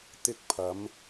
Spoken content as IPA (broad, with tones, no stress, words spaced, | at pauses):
t̪ɪ˧k̚pʰɐ˨˧m